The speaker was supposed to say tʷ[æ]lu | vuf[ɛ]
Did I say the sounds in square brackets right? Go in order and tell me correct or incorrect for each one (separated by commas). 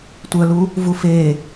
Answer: incorrect, incorrect